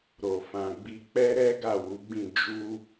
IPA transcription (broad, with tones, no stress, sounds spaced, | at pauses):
ɾ o˨ f ã˨ ɡ͡b i˧ k͡p ɛ˦ ɾ ɛ˦ ɡ a˦˨ w u˨˦ ɡ͡b ĩ˦˨ d͡ʒ u˧